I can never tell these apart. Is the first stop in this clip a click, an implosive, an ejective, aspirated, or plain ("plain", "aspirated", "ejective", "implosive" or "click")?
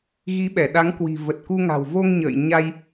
implosive